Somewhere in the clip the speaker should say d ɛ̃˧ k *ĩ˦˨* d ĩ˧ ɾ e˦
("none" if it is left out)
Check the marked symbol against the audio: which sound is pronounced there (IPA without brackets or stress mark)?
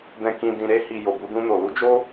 ĩ˧